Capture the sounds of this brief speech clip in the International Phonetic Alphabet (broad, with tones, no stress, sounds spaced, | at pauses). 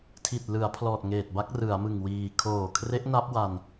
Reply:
tʰ i˨˩ t̚ l ɯ˩˦ a̯ pʰ l ɔː˨˩ t̚ ŋ eː˨˩ t̚ b a˦˥ k̚ r ɯ˩˦ a̯ m ɯ˨˩ ŋ w iː˨˩ kʰ oː˨˩ kʰ r e˦˥ ʔ n a˦˥ p̚ w a˧ n